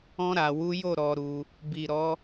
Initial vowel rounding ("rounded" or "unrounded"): rounded